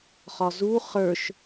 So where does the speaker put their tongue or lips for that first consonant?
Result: uvula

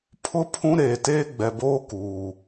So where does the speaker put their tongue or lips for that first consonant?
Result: lips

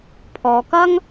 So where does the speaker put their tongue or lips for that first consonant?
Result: lips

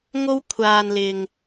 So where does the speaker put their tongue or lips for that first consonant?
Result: velum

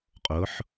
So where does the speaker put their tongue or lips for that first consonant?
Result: uvula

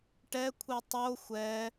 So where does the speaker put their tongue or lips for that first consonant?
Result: retroflex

